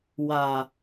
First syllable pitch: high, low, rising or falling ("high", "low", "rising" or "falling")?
low